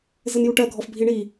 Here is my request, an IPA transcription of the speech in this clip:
z ɘ n j u ʈ ɜ ɡʱ ɔ f bʱ i ɳ i

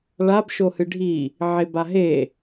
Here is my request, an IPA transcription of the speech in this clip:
ɭ a b ʃ o h ɨ ɖʱ i | ʕ e b a ɦ e

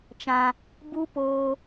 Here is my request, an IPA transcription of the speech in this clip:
t͡ʃ ã˧ | b u˦ p oː˧

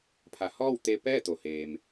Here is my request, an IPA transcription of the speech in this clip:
pʰ a˩˧ h ɔː˥˨ w t̪ e˧ p ɛː˥˨ t̪ o˩ h eː˩ m

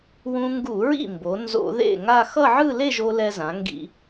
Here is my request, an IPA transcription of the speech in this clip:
w ũ˧ ŋ ɡ u˧˩˧ ɹ ḭ˥˩ m b o˩˧ n z o̰˧˩˧ ð ḛ˥˩ ŋ a˥˧ x ʌ˥˧ ʕ ɯ˥˧ l e˥˧ ʒ o˧ l ɛ˧ z ã˩˧ ŋ ɡ ḭ˧˩˧

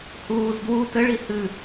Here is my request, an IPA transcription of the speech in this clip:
h uː z d w u t ɘ ɭ i h ɨ

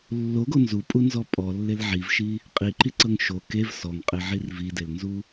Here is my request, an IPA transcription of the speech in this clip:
lː o ɡ o n z u pʼ u n z ɔ pʼ ɔ lː e l ʕ i v ʃ i | qʼ i ǃ i ǀ ɤ ŋ ʃ o k e v s ɔ ŋ qʼ e ʕ i r v i d e l n z u

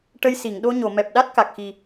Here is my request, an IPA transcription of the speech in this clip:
ʈ ə˧ j s i˨˩˨ ŋ ɗ o˧ ɲ o˨˩˨ m ɛ˨˩ p̚ ɗ a˦˥ t̚ k a˨˩ k̚ x i˨˩

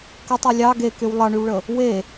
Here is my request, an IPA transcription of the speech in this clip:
k ə tˤ y lʲ ɑ ɡ e k y w lˠ ɑ ɳ y w ɭ ə | w e

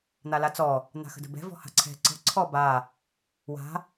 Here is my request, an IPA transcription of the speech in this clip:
n̪ a l a t͡s ɔ | n̪ a̤ x ə̤ d ə̤ b ɛ̤ v ɔ̤ h a̤ ǀʰ ɛ̤ ǀ ə̤ ǀʰ ɔ b a | w a̤

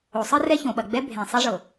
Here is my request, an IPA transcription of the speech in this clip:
o˨ sˤ ɨ˦ r ɛ˦ ç õ˨ ɓ ɐ˨ ɡ͡b ɛ˦ bʱ ẽ˨ sˤ e˦ ʐ ɤ˨

